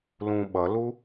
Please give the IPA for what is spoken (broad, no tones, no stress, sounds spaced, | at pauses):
l ũ ɓ ʌ l u